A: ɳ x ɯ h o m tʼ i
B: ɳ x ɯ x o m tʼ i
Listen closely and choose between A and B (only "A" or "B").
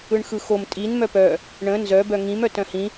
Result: B